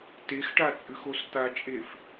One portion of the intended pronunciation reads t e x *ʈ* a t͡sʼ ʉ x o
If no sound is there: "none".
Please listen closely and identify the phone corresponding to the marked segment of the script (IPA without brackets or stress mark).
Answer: ʈ